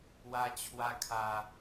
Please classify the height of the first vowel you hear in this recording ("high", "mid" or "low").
low